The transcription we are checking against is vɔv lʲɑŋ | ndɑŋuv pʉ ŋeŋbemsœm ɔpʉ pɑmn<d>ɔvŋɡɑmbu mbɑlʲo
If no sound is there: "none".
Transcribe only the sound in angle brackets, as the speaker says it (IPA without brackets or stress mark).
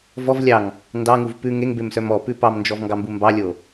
d͡ʒ